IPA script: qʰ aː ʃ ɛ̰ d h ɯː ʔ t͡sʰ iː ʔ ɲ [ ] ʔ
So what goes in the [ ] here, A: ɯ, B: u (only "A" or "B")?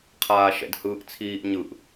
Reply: A